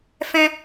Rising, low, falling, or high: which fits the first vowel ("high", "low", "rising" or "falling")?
high